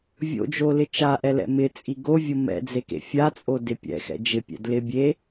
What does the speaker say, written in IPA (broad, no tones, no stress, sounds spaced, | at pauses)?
vʲ o̰ d͡ʒ o l ɪ t͡ʃ a ʔ ɛ l ɛ̰ m ɪ t͡sʼ i ɡ o vʲ ʊ m ɛ̰ d͡z e k ḛ fʲ a t͡sʼ o d ɪ pʲ ɛ̰ x ɛ̰ d͡ʒ ɪ pʲ ɛ̰ d l ɪ bʲ e